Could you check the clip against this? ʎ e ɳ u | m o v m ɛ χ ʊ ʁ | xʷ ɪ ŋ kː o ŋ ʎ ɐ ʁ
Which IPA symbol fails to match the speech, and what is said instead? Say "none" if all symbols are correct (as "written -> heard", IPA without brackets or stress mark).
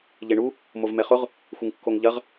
none